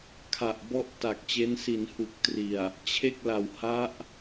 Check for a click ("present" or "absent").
absent